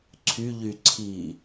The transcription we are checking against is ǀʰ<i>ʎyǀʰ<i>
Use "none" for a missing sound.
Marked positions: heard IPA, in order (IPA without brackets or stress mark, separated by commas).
y, i